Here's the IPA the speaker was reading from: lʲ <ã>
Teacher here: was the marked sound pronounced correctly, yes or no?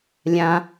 yes